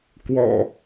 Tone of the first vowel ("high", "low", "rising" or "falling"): low